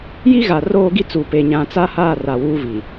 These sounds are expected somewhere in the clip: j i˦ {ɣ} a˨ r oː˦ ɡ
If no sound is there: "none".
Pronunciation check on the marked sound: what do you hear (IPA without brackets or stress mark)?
ɣ